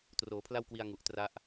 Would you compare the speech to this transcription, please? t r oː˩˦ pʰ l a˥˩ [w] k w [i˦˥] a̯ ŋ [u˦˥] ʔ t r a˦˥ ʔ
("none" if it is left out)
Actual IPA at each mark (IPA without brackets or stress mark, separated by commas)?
w, i˧, u˨˩